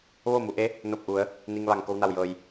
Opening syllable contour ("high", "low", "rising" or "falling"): falling